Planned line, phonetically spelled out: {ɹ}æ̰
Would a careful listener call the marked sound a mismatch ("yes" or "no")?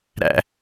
yes